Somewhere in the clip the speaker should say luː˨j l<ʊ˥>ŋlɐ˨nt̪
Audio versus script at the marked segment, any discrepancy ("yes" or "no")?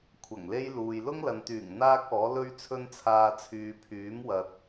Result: no